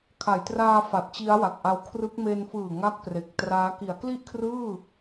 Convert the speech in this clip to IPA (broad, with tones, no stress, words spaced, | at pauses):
kʰa˩˦jtraː˧ fa˨˩t̚t͡ɕi˦˥a̯wa˨˩k̚ʔa˧w kʰrɯ˦˥k̚ me˧nfɯː˨˩ ŋa˥˩k̚pre˨˩k̚traː˦˥ ki˩˦a̯kli˥˩ʔkʰrɯː˥˩